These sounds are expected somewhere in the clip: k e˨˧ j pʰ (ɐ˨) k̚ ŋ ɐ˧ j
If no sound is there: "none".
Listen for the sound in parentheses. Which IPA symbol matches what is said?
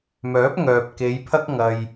ɐ˥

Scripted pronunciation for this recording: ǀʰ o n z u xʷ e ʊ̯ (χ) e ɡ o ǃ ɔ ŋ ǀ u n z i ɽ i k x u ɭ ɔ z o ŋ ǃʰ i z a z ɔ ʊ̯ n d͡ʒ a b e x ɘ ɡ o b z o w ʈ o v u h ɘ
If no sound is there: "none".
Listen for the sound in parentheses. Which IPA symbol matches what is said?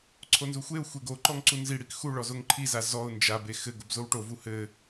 xʷ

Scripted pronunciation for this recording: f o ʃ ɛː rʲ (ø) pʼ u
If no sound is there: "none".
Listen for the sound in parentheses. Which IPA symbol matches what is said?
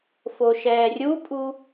u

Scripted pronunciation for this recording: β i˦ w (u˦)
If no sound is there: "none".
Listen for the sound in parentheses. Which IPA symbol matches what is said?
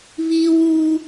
u˦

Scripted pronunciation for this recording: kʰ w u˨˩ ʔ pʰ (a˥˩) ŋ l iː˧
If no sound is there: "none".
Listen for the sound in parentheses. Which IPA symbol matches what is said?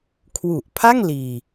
a˥˩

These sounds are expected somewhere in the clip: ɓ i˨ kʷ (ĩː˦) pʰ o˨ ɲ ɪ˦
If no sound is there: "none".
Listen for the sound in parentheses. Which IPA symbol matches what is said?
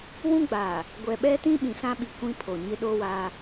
ĩ˦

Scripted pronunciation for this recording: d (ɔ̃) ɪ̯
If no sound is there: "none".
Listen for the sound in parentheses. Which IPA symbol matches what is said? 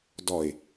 ɔ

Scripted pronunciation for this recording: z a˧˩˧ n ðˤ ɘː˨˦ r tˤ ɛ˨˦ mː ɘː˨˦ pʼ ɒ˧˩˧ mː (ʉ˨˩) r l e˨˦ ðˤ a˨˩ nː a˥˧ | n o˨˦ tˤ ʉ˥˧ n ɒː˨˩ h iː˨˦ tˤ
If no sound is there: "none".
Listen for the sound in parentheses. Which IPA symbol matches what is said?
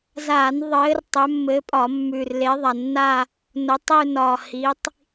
ʉ˨˩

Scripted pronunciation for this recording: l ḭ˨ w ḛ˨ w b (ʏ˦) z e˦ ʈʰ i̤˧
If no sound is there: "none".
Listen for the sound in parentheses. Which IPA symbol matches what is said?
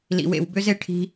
ʏ˦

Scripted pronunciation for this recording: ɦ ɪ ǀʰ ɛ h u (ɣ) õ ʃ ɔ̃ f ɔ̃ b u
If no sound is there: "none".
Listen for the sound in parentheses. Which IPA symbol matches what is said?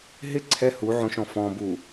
ʕ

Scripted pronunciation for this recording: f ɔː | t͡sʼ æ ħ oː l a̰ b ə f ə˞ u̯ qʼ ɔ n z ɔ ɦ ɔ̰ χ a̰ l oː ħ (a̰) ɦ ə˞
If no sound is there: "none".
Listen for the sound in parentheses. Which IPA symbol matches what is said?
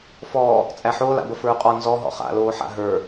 a̰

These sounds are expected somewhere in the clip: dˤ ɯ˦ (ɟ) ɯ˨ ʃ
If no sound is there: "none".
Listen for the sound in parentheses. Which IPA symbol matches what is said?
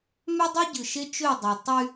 ɟ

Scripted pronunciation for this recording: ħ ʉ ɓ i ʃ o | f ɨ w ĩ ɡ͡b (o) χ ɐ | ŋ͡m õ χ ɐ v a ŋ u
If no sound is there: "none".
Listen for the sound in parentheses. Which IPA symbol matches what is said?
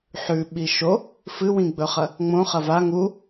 ɵ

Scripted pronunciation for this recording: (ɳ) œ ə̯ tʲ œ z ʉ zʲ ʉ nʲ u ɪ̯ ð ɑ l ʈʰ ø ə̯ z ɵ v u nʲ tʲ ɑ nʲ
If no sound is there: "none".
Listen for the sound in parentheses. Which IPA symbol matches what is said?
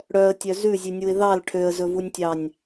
ɽ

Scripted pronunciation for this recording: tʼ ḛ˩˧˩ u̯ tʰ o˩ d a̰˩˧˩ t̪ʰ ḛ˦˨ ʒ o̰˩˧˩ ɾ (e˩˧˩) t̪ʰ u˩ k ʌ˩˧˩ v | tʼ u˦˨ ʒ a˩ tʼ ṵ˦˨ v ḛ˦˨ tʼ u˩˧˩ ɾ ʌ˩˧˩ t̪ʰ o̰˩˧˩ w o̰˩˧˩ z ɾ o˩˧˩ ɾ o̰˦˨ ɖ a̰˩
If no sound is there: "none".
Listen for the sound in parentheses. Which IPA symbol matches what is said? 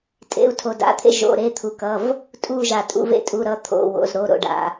e˩˧˩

